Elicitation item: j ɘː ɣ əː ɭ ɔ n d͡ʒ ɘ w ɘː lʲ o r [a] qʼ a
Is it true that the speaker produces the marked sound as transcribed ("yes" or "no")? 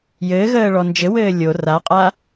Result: yes